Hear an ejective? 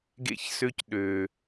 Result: no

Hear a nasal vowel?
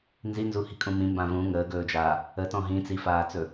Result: yes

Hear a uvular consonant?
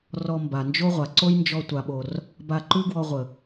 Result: yes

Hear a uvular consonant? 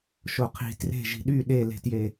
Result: yes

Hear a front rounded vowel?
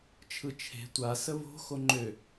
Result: yes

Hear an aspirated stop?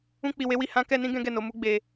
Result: no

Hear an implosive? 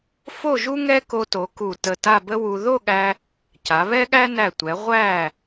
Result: yes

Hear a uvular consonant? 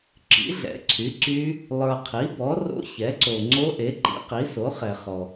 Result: yes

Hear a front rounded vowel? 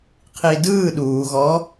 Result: no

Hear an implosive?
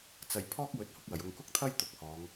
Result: no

